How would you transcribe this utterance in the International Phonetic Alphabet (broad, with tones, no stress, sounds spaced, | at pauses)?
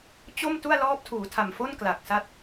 t͡ɕ o˥˩ m t u˥˩ a̯ l ɔː˦˥ p̚ tʰ uː˩˦ tʰ a˨˩ m f o˥˩ n k l a˨˩ k̚ s a˥˩ t̚